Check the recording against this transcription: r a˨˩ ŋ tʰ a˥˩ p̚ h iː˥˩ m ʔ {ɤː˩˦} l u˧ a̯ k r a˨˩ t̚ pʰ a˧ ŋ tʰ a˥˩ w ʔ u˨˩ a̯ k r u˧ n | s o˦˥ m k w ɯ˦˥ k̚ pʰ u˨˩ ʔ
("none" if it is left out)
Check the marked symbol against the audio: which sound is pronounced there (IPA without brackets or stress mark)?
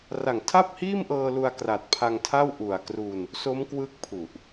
ɤː˧